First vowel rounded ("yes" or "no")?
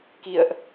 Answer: no